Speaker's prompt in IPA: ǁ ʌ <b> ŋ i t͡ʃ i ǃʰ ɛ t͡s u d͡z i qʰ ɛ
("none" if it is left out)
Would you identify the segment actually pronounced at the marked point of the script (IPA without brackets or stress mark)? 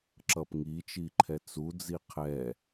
p